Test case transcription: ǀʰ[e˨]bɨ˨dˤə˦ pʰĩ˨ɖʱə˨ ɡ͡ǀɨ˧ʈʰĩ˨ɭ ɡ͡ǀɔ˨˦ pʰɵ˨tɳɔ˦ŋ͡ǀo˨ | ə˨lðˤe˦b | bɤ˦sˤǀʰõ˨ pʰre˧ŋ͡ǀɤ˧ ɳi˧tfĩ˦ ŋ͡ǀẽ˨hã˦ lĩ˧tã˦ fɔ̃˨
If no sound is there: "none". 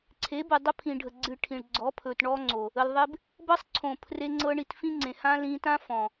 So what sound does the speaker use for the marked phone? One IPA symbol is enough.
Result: e˨˦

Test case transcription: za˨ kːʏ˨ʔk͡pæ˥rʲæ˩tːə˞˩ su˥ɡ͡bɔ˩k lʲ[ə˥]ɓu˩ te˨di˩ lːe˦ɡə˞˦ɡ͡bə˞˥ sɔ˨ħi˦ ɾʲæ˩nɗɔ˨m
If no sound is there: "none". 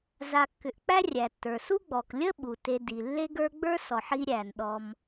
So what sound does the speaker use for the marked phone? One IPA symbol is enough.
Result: ə˥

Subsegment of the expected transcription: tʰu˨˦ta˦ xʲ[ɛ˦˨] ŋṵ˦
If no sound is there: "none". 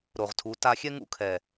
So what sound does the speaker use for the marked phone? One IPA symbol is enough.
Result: ɛ˦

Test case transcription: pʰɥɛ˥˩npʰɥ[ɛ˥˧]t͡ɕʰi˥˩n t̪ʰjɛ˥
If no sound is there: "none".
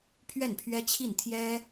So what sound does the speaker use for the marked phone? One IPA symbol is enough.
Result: ɛ˥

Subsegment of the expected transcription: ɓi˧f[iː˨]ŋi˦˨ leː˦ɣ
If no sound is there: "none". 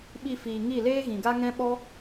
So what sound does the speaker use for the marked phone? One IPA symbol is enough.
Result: iː˨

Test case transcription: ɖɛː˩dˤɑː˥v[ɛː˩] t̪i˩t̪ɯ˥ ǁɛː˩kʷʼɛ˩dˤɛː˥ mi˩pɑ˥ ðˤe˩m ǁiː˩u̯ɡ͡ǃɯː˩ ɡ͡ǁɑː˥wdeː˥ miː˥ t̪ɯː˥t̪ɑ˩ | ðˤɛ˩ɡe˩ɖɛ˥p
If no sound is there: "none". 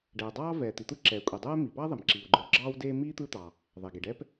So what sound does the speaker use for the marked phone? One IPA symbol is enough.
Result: ɛː˩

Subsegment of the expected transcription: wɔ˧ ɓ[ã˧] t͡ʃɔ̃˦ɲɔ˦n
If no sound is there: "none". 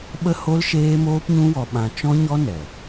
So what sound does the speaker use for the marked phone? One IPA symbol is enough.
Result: ã˧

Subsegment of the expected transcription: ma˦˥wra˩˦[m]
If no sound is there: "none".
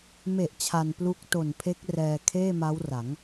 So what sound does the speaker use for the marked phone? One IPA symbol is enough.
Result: ŋ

